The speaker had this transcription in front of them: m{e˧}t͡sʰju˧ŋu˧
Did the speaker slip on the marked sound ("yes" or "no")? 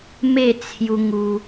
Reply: yes